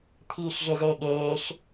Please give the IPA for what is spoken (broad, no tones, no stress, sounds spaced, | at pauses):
t̪ʰ iː ʃ ʒ e z eː ɠ eː ʃ